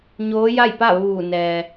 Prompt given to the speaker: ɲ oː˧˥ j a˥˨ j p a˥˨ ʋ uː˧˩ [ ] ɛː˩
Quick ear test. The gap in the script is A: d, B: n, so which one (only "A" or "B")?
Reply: B